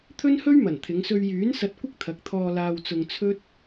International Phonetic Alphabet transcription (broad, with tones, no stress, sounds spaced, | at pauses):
t̪ʰ ɵ˥ n h ɵ˥ ɥ m ɐ˨˩ n t̪ʰ ɪ˨˧ ŋ s ɵ˧ ɥ j yː˨˥ n s ɐ˧ t̚ kʷ ɪ˥ k̚ t̪ʰ ɐ˨˥ k̚ t̪ʰ ɔː˧ l aː˧ w t͡s ʊ˧ ŋ t͡sʰ ɵ˥ t̚